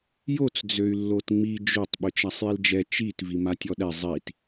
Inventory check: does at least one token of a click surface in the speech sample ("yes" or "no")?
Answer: no